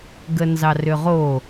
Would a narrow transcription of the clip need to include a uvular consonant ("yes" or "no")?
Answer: yes